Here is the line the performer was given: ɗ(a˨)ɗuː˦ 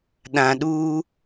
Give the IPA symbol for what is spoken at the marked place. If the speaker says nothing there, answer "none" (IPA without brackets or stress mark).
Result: ã˨